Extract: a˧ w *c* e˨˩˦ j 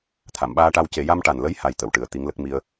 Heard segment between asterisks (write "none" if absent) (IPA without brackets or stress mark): c